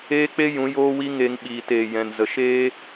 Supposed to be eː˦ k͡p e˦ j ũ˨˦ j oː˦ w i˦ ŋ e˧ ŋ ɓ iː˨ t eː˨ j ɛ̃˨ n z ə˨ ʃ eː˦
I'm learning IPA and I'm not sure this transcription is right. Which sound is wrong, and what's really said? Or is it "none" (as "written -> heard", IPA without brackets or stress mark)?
none